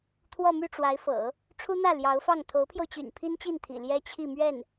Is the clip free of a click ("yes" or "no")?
yes